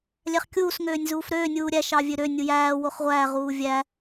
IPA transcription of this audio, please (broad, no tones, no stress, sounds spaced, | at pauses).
lʲ æ χ kʲ uː s ŋ øː nʲ z uː f ɾ øː nʲ uː ɾʲ æ ʃ ɑ vʲ ø ɾ ø nʲ u j æː w o χ ʁʷ æː ʁ uː vʲ æ